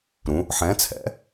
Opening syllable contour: rising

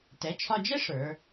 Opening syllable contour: rising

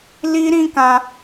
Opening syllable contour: high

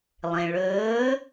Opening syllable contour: low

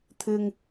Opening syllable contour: low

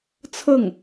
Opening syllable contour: falling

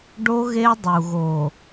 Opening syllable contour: high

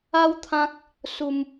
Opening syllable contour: high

